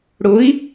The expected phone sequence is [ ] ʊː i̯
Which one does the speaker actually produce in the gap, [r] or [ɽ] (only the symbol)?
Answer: ɽ